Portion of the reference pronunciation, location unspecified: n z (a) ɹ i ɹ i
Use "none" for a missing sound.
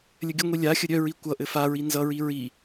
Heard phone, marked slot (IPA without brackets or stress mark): ʌ